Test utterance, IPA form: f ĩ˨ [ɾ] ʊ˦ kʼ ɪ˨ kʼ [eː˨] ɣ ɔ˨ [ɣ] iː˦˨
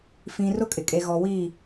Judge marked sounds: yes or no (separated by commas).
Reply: no, no, no